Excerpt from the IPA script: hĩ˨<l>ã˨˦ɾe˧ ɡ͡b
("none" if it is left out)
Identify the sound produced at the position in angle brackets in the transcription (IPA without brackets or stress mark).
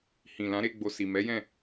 l